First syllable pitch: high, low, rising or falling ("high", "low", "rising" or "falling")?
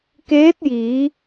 rising